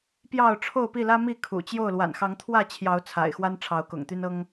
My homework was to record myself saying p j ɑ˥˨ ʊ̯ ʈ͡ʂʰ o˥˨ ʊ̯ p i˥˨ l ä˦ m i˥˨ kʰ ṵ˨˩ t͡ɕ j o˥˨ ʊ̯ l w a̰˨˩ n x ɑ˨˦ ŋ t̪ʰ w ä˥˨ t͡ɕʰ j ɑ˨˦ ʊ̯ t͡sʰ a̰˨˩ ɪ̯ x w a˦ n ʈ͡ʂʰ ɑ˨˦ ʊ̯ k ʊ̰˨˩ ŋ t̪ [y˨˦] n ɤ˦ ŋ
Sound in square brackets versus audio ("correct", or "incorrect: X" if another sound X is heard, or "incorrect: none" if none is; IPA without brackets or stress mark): incorrect: y˦